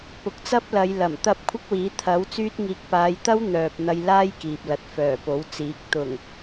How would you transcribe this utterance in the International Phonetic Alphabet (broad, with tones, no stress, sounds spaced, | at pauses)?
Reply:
p ʊ˨˥ k̚ t͡s ɐ˥ p̚ l ɐ˨˧ j l ɐ˨˩ m t̪ ɐ˥ p̚ kʷʰ ɐ˥ k̚ w iː˨˥ t̪ʰ ɐ˨˥ w t͡s yː˥ t̚ ŋ iː˧ k̚ p aː˨˧ j t̪ ɐ˥ w n̪ œː˨ p̚ n̪ ɐ˧ j l aː˥ j k iː˨ p̚ l ɐ˨˥ t̚ f œː˨˩ p o˨˥ w t͡s iː˨˥ k̚ t̪ ʊ˨˩ ŋ